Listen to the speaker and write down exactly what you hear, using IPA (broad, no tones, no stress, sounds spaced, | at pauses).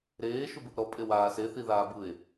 ɾ eː ʃ u b ɯ ʔ ɾ ɔ pʼ e w aː s e θ i ð aː b ɯ e̯